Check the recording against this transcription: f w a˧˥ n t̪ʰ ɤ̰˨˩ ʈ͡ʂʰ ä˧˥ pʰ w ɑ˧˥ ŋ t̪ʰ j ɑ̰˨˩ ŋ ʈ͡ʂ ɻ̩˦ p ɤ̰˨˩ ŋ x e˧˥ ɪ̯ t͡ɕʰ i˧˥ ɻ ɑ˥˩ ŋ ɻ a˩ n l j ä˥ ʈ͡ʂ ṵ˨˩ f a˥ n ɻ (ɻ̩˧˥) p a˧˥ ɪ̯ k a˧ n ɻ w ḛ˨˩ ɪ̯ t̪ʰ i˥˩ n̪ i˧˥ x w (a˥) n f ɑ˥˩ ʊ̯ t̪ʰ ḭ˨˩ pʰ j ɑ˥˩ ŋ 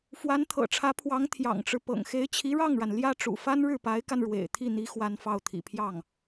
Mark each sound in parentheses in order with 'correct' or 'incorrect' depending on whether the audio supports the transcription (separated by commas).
incorrect, correct